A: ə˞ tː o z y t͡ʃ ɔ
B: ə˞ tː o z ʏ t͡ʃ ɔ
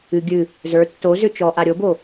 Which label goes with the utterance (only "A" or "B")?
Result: B